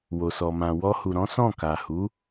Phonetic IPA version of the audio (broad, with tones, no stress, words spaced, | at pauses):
wo˨sɔ˨ mã˨ wɔ˧hu˨ɾɔ̃˨˦ sɔ̃˦˨ka˨hu˨˦